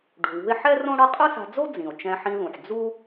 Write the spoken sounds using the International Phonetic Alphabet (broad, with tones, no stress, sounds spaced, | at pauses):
ɖ ṳ˩ w ṳ˧ e̯ ħ ɛ˥ r õ˥ ɽ ʌ˥ qʼ ɯ˥ s a̤˧ d͡z o˥ d͡z ĩ˩ o̯ t͡ʃ ɛ̃˧ ħ ĩ˧ ð ũ˩ ħ d͡z u˥